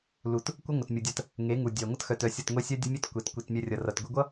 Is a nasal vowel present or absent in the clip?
absent